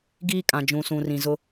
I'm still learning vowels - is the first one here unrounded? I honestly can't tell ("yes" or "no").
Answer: yes